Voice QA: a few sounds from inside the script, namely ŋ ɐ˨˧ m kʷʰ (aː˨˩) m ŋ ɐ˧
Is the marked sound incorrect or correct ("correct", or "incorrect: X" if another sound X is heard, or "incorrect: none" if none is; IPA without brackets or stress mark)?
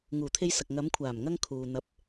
correct